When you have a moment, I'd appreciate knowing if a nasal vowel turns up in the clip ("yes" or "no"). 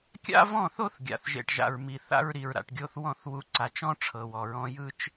yes